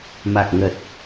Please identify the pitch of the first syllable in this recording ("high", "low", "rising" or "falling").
low